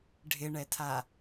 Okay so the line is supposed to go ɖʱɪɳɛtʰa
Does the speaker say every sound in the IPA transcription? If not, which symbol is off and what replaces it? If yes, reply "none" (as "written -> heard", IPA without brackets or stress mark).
none